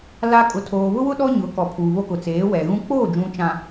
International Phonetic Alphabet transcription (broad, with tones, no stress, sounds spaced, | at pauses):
l a˦ kʼ ʊ˨ tʰ oː˨ β ʊ˦ w ʊ˦ ɗ ɔ˦ ɲ ʊ˨˦ k ɔ˨ pʰ uː˨ β o˦ k ʊ˨ t͡s eː˨˦ w ɛ˨ ɣ ũ˦ k͡p oː˦˨ d͡ʒ ũ˨ t͡ʃ ã˨